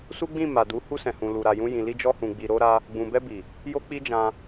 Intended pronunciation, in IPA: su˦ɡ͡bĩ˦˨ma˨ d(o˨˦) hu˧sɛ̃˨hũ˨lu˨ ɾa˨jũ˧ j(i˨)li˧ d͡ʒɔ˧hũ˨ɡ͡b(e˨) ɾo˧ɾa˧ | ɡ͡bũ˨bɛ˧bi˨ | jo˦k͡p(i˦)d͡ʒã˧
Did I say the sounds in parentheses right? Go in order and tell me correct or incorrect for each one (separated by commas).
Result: incorrect, incorrect, incorrect, correct